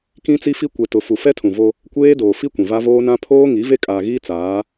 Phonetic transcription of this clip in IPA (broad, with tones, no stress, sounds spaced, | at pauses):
k ĩ˦ t͡s i˦ f i˦ kʷ ɛ˨ t ʊ˨ f u˨ f ɛ˦ tʰ ũ˨ v o˦ | kʷ eː˦ d oː˨ f i˦ kʷ ĩ˨ v a˦ v oː˦ n ã˦ pʰ oː˦ ŋ i˨˦ v e˦ kʼ aː˨ ɣ iː˦ t͡s aː˨˦